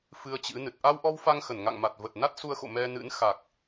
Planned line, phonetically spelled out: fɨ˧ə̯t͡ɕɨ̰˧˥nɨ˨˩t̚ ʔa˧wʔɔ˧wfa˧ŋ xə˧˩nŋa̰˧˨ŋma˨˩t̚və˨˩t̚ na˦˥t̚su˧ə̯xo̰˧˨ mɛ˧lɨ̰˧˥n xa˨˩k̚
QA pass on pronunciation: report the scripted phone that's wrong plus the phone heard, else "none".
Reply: l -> n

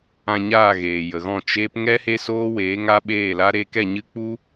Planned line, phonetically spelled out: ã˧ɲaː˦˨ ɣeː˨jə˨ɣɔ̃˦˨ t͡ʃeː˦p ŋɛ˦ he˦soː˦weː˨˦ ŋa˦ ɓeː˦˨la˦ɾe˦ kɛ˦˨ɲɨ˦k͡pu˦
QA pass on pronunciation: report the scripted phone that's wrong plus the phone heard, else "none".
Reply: none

